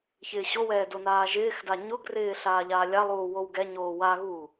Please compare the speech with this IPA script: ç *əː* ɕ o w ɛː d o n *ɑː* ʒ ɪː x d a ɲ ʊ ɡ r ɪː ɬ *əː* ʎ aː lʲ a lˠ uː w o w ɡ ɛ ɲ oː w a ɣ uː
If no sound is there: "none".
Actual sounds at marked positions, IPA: ɪː, aː, aː

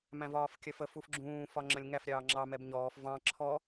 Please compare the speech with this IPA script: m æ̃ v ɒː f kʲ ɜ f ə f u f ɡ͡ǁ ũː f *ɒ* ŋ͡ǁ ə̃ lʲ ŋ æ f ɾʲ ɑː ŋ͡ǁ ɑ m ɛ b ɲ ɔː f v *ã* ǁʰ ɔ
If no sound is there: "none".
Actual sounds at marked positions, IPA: ɒ, ɑ̃

